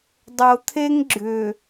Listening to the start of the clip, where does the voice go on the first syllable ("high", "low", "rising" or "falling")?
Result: low